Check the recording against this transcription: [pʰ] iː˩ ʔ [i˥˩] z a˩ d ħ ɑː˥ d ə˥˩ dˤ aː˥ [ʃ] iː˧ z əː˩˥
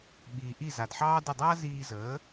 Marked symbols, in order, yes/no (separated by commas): no, yes, no